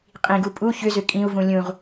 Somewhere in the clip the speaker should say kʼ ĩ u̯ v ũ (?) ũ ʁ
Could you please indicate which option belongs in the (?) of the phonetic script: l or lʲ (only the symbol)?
lʲ